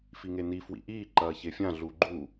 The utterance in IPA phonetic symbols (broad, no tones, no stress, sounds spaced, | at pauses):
f i ŋ e n i f w ḭ ʔ iː ǃ ɐː ç e fʲ ã ɮ u ɡ͡ǃ u